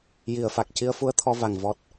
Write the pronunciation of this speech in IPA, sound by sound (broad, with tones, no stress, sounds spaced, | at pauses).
j i˨˩˨ ə̯ f a˨˩ k̚ c i˧ ə̯ f u˧˥ ə̯ t̪ʰ ɔ˧ v a˨˩ ŋ v ɔ˨˩ t̚